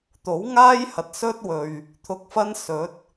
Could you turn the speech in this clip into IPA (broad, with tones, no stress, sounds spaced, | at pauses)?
t̪ o˨˥ w ŋ aː˥ j h ɐ˨ t̚ s ɵ˥ t̚ w ɵ˨ ɥ | t̪ʰ ʊ˧ k̚ f ɐ˥ n s ɵ˨˥ t̚